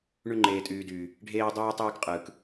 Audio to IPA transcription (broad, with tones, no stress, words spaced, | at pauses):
ɳy˦ ŋ͡ǃeː˨tʼyː˨dyː˨ | ɖʱeː˦dˤyː˦tˤyː˦kqʼɯː˨k